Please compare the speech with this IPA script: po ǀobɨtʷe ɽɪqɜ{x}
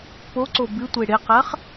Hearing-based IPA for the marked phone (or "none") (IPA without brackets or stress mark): χ